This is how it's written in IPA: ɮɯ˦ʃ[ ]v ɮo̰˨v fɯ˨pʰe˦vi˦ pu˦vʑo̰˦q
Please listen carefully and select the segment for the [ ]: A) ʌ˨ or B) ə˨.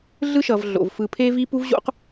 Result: A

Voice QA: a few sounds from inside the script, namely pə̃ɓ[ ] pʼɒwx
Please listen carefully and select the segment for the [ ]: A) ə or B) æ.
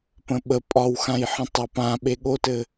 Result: A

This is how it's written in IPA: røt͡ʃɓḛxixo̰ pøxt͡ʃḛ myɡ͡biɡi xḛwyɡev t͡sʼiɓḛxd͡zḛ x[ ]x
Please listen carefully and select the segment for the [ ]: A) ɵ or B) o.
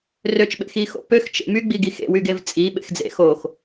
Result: B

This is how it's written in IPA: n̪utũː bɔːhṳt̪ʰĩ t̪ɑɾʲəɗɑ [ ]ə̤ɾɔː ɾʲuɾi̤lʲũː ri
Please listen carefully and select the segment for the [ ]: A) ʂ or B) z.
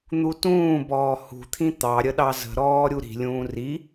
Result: B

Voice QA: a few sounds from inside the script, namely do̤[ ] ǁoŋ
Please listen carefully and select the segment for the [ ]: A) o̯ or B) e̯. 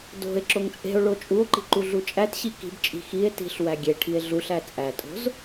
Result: B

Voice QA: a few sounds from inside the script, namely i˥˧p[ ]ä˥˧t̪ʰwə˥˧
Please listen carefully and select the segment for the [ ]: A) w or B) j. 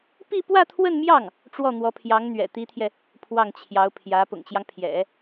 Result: A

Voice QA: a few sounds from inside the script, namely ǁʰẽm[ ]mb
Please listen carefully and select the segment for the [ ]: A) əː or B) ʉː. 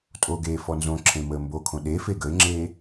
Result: A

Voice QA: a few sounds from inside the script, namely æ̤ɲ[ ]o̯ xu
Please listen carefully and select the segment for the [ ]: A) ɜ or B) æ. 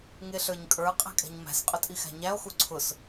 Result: B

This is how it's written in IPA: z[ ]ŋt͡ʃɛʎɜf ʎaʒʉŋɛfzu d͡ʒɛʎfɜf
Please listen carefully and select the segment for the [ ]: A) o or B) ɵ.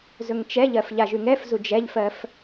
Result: B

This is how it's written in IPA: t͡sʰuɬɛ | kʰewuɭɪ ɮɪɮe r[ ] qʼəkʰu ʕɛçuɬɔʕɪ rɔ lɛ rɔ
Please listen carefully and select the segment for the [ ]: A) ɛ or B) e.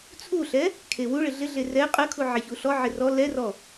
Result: A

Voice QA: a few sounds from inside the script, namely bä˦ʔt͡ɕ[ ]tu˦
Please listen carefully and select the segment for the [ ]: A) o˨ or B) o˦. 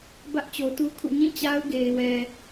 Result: A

